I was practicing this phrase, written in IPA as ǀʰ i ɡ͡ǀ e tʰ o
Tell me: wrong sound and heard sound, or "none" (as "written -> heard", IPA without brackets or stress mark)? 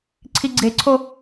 tʰ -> ǀʰ